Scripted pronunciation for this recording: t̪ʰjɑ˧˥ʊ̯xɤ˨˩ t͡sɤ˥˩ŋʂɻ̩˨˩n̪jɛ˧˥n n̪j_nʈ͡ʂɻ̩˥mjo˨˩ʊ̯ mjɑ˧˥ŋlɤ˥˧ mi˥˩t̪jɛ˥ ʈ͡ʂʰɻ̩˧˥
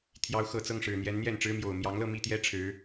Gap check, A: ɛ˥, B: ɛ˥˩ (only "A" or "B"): B